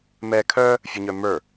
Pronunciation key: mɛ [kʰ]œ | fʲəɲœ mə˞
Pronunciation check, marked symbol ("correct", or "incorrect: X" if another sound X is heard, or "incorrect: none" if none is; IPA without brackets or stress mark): correct